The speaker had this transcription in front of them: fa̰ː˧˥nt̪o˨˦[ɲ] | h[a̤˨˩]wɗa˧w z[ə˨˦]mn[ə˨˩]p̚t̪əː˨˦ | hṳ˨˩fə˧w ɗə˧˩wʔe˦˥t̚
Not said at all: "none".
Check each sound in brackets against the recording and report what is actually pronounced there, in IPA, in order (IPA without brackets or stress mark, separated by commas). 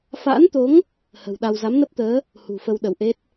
ŋ, ə̤˨˩, a˨˦, ə˦˥